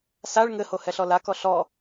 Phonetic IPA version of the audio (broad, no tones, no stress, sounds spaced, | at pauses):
s a ɭ ŋ ɘ h o h ɛ ɬ ɔ l a k ɔ ɬ ɔ